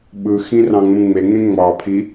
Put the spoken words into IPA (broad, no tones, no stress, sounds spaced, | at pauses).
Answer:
ɓ ɯ x ĩ r ɑ̃ ŋ͡m ũ ŋ͡m e ŋ ẽ ŋ͡m ɑ pʰ i